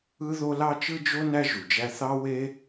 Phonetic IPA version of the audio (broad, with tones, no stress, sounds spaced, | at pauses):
ɯ˥ ð o˥ l ɑ˥ t͡ʃ ɯ˥ d͡ʒ o˥ n æ˥ ʒ u˩ d͡ʒ æ˥ θ ɑ˥ w e˥